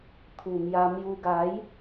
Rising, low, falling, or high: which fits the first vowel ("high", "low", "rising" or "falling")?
low